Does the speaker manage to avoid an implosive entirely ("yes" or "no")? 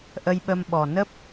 no